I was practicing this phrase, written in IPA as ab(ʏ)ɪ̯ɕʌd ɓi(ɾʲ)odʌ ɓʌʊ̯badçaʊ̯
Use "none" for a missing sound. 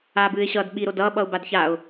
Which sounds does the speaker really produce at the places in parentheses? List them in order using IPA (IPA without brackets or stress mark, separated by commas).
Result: ɨ, ɾ